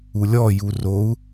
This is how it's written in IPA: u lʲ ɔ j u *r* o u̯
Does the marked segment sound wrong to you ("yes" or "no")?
no